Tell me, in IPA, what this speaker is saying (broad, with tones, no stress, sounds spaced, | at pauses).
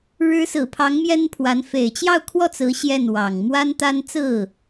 ɻ ɻ̩˧˥ s ɹ̩˨˩ pʰ ɑ˧˥ ŋ m j ɛ˥ n pʰ w a˧˥ n f e˨˩ ɪ̯ t͡ɕ j ɑ˥˧ ʊ̯ kʰ w ɔ˥˩ t͡s ɹ̩˧˥ ɕ j ɛ˥˩ n w ɑ˨˩ ŋ m w a˥ n t̪ a˥ n t͡s ɹ̩˥˩